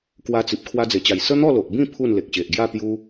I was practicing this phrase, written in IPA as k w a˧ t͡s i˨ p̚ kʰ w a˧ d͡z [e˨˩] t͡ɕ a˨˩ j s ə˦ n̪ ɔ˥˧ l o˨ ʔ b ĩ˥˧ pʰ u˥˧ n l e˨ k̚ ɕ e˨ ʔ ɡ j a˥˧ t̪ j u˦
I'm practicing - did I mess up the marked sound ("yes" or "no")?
no